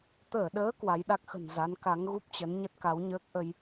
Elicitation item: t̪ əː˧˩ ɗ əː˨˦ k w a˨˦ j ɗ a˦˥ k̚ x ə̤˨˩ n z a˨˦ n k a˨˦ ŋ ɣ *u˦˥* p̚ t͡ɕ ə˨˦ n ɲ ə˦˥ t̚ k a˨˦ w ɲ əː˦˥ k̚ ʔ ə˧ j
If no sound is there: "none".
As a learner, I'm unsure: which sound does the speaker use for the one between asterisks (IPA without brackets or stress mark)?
u˦˥